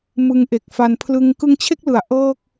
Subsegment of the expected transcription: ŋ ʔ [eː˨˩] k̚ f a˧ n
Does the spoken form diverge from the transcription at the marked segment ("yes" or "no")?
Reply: yes